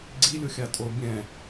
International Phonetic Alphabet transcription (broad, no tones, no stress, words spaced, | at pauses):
ɡ͡ǀilʲoxʲatʼo bʲɛ̃